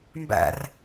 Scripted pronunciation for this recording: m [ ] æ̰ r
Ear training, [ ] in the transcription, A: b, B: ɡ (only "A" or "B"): A